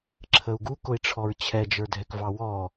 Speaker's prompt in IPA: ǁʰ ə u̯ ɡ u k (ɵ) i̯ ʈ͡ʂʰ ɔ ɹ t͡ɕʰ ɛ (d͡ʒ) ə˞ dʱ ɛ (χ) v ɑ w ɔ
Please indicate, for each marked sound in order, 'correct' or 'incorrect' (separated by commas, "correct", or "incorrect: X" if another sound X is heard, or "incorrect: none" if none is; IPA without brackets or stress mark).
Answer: incorrect: ʊ, correct, incorrect: k